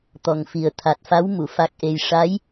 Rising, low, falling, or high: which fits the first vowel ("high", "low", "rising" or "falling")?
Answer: low